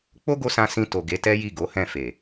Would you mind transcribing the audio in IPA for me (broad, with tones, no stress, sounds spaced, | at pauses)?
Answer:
k͡p o˦ ɡ o˧ s ã˧ s ĩ˧ t o˨ ɡ e˨˦ t ɛ˦ j i˦˨ ɡ o˨˦ h ɛ̃˦˨ f e˨